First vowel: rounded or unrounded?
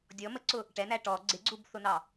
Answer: rounded